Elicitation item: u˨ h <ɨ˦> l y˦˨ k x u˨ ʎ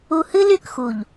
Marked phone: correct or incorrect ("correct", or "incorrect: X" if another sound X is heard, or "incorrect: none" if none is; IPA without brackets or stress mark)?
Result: correct